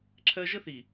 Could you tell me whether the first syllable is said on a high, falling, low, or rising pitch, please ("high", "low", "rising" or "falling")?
high